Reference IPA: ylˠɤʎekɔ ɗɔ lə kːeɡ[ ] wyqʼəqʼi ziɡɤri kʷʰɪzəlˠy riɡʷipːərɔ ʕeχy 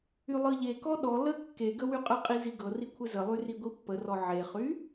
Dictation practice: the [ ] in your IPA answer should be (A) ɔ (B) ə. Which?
B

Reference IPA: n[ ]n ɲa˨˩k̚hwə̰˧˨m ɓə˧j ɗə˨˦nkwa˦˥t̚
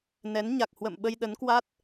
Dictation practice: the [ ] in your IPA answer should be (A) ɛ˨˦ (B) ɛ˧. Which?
A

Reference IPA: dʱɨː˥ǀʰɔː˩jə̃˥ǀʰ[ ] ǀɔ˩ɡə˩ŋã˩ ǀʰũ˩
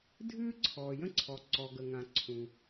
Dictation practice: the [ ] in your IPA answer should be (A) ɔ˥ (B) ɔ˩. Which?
B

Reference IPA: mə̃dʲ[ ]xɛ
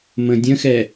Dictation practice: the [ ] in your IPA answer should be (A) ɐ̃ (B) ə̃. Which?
B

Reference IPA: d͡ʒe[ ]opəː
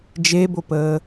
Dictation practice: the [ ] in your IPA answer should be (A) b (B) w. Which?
A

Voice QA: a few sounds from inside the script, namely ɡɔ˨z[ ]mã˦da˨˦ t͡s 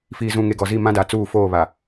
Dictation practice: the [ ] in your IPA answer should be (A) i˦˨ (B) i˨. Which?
A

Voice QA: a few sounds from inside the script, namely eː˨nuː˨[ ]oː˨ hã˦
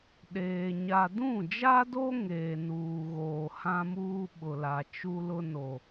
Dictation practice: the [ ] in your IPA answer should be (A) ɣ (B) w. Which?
A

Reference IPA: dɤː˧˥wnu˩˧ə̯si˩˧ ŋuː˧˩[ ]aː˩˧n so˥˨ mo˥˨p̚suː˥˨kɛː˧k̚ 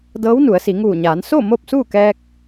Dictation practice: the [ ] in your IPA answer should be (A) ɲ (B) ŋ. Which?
A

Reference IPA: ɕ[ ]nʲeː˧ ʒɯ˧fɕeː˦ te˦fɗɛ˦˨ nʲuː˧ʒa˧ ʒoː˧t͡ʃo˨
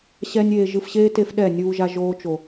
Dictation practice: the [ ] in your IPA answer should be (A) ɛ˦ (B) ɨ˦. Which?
A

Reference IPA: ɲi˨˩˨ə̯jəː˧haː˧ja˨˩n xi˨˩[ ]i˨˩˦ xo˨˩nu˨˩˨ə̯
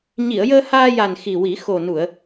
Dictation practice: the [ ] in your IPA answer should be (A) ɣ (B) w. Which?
B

